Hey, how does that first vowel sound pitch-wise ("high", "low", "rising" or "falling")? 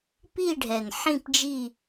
falling